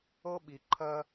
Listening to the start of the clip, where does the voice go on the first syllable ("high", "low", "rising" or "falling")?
high